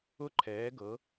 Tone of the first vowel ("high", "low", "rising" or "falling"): falling